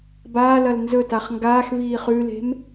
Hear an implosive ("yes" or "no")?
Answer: no